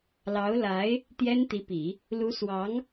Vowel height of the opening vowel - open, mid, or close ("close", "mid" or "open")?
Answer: open